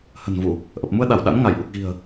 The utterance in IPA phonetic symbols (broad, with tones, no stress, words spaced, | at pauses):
hə̤˨˩nvu˧˩˨ | ʔə˨˩p̚mu˧ə̯ɗa˧˩w ɗa̰˧˥nŋa˧˩j ʔu˨˩k̚ɣi̤˨˩ə̯